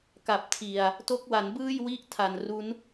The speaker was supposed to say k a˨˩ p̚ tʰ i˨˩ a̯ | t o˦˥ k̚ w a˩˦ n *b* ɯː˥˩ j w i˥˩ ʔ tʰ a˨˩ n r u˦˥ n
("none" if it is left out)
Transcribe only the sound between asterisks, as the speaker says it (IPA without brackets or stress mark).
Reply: b